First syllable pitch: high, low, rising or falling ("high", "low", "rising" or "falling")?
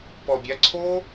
low